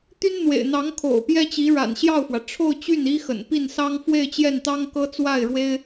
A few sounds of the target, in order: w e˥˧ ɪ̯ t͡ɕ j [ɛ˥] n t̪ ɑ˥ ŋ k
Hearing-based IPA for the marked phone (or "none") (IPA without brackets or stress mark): ɛ˥˩